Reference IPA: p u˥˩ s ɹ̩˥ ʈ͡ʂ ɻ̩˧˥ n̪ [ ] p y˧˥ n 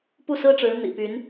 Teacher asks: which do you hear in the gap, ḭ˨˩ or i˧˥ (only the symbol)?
ḭ˨˩